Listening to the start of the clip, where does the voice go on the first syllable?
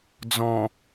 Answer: low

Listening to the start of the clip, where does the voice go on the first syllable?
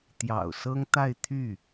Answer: low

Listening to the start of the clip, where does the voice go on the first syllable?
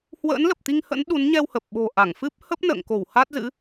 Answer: rising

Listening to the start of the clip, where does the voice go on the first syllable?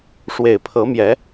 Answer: low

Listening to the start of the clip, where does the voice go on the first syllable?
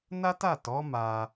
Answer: high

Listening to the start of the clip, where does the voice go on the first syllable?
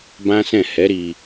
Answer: high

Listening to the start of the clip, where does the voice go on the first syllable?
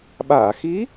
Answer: low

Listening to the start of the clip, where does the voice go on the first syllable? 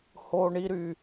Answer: high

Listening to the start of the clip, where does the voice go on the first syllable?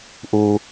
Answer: low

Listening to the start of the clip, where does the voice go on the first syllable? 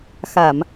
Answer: low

